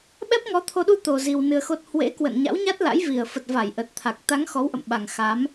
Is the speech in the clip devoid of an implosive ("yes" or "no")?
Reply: no